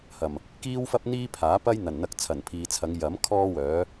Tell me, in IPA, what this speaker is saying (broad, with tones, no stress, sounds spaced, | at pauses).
h ɐ˨˩ m | k iː˥ w f ɐ˥ p̚ n̪ iː˥ pʰ aː˨˥ p ɐ˥ j n̪ ɐ˨˩ n n̪ ɐ˧ k̚ t͡sʰ ɐ˨˩ n pʰ iː˨ t͡sʰ ɐ˨˧ ŋ j ɐ˨˥ m kʰ ɔː˥ w œː˨˥